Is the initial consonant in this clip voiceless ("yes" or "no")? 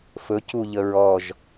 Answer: yes